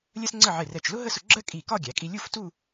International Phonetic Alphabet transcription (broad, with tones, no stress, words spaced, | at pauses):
lʲɜ˥sŋ͡ǀə˥˧ ʕɪ˧˩rɛ˧˩t͡ʃlʊ˥ ɦə˥sʊ˧ɡ͡ǁɜ˥kʼi˧˩ kɒ˥˧ɡʲæ˩˧kʼi˧ lʲu˥˧ftu˥˧